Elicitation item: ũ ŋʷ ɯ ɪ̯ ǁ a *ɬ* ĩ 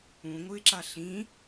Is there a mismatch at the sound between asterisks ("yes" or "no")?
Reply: no